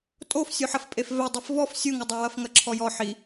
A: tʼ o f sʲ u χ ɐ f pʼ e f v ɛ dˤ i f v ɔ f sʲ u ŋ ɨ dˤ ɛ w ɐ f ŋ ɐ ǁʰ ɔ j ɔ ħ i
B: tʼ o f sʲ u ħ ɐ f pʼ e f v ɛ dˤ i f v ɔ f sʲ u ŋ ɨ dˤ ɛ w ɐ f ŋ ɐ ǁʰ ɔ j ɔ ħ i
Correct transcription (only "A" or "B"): B